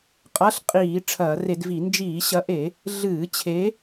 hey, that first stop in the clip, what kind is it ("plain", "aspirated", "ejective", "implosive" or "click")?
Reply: ejective